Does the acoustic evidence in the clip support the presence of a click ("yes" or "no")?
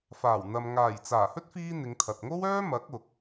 no